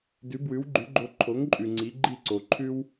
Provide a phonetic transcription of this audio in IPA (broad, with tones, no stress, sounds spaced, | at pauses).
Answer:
d ʉ˩˥ b w ʉ˩˥ w ɡ͡ǃ ʉ˩˥ ɡ͡ǃ o˧ ǃʰ o˩˥ ŋ ǃʼ ʉ˩ ŋ͡ǀ i˩˥ ɡ͡ǃ i˥˩ ǀ o˩ ǃʰ ʉ˥ w